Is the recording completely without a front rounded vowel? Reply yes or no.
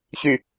no